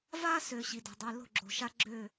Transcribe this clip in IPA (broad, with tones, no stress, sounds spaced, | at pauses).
v a˦ s ø˨ ɕ i˨ d o̤˨ dˤ i˨ l o̤˦˨ ɡ͡ǁ o̤˨ ʃ a˦ ɡ͡ǁ øː˦˨